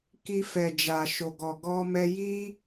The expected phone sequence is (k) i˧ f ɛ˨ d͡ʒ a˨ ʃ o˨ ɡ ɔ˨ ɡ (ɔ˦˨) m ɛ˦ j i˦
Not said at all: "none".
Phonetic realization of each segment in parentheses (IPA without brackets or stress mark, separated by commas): k, ɔ˧